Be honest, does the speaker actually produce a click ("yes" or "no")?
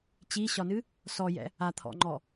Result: yes